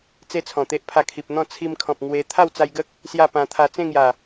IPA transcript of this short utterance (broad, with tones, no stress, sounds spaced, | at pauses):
t͡s e˦ t͡sʰ ɔ̃˨˩ t̪ e˦ ʔ pʰ a˧ kʰ i˨ p̚ n̪ ɔ̃˥˧ t͡sʰ i˧ m kʰ ɔ̃˨ p̚ ŋ w e˧ t̪ʰ a˥˧ w t͡s a˧ j ɡ ə˦ k̚ | s j a˥˧ p ã˧ t̪ʰ a˧ t͡s ẽ˥˧ ŋ j a˨˩